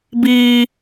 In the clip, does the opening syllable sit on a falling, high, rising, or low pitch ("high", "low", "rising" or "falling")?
high